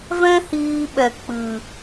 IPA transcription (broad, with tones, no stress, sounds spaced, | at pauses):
v ɛ̃˦ h iː˧ ɓ ɛ˨ k͡p ɨ˨